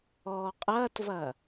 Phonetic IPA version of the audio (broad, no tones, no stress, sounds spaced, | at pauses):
ɔː qʼ ɐː t v ɐ